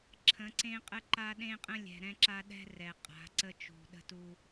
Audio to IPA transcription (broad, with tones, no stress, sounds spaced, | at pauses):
ǁʰ ə̃˨˦ ǀ ẽ˦ qʼ ə˦ ǃ a˦ ɗ ẽ˦ qʼ ə̃˦ lʲ ɛ̤˨ ɾ ɛ̃˦ ǁ a˦ ɗ ɛ̤˦ r ɛ˨ qʼ a̤˨˦ ǀ ə˦ t͡ʃ ṳ˨ ɗ ə̤˦ t u˦